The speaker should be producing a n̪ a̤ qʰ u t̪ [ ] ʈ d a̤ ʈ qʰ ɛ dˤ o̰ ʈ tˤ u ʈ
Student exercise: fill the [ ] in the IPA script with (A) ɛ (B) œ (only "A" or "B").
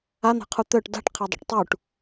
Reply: B